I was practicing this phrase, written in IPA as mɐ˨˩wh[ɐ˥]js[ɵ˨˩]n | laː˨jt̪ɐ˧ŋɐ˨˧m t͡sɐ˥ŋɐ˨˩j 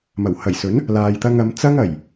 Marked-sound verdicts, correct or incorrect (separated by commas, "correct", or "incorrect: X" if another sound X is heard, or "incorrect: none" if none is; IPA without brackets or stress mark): incorrect: ɐ˨˩, incorrect: ɵ˨˥